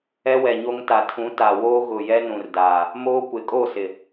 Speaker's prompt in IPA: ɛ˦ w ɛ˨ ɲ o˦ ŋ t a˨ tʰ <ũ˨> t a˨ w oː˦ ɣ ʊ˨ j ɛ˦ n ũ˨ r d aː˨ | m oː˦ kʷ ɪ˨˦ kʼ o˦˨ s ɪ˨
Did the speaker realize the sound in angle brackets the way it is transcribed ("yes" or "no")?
no